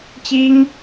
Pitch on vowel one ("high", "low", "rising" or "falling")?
high